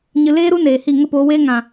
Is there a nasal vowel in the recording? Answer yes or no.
yes